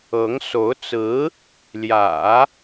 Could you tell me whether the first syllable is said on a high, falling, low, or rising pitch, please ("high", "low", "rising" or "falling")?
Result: rising